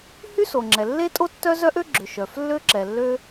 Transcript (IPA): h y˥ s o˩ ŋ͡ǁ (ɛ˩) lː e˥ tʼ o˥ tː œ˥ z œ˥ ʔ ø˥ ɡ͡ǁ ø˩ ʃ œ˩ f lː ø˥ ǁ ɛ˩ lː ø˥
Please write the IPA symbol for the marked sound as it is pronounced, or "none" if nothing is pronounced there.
ɛ˩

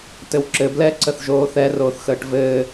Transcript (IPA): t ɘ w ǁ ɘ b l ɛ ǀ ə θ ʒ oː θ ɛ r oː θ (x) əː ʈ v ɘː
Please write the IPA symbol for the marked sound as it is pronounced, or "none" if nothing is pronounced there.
x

